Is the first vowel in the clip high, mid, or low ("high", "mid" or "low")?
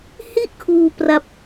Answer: high